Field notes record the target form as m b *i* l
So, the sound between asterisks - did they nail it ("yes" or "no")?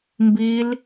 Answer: yes